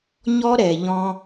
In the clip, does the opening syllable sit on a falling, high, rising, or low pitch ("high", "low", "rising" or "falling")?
high